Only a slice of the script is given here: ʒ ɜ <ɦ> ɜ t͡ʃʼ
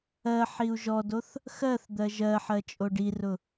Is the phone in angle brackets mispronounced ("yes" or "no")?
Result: yes